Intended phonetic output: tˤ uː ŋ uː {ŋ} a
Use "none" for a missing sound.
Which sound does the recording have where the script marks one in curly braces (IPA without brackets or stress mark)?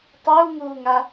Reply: ŋ